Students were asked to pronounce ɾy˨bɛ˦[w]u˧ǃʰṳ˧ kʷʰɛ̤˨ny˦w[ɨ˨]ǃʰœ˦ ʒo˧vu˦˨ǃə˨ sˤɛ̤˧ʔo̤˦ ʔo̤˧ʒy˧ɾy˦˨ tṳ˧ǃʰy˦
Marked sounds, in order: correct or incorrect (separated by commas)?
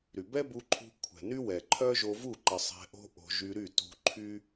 incorrect, incorrect